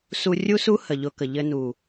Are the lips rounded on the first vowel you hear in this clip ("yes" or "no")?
yes